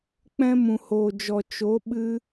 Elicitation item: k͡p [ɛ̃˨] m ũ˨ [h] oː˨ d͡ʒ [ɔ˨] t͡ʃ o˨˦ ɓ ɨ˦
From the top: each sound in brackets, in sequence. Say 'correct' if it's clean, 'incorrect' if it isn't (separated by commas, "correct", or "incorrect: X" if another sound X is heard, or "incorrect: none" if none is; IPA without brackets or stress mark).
incorrect: ɛ̃˦, correct, correct